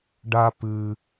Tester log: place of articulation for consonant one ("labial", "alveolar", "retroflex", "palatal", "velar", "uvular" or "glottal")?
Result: retroflex